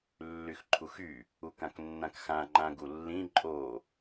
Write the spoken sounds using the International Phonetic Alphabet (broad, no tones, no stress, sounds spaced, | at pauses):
lː y x ǃʰ u x y | u k ã k nː ã k x ã ŋ͡ǃ ã ɡ u lː ĩ ǃʼ o